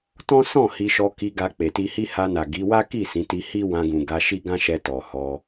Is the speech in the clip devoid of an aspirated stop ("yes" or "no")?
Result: yes